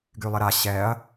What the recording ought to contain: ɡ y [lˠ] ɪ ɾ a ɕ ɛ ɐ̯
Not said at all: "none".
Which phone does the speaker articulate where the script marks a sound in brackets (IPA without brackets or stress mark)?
lˠ